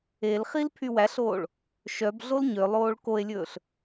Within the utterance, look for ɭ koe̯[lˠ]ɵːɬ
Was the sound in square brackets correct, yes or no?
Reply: no